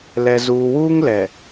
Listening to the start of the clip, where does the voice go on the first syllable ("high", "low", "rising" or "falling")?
low